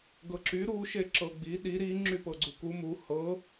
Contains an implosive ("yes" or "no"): yes